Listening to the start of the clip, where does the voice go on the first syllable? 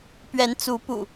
rising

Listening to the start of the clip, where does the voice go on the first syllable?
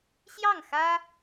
falling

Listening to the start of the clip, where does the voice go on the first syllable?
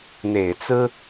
low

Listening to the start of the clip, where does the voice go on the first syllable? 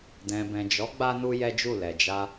low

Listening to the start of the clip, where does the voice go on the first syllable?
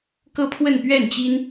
high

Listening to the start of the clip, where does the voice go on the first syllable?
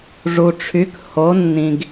low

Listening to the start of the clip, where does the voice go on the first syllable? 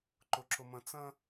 high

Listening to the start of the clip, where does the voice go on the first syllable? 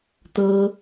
high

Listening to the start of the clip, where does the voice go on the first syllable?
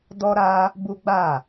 high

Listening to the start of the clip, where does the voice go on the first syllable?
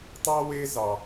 high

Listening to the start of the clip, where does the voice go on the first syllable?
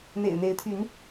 low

